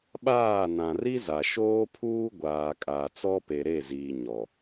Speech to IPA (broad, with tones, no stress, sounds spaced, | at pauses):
ɓ aː˦˨ n ã˨ r i˦ z a˨ ʃ oː˦ pʰ uː˦ ɡʷ aː˨ kʼ a˨ t͡s ɔ˦ p e˨ ɾ e˦˨ z iː˨ ɲ ɔ˨